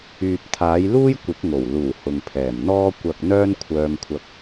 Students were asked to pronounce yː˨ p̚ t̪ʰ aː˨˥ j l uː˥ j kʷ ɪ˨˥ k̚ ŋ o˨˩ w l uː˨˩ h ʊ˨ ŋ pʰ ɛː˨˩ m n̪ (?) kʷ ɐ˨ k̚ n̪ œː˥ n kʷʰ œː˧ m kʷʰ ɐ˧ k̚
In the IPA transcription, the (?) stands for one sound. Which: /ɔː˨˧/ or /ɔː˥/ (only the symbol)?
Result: ɔː˥